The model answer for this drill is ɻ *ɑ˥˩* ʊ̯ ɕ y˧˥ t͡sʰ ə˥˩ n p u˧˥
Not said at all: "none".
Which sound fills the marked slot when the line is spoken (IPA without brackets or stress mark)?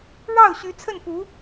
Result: ɑ˥˩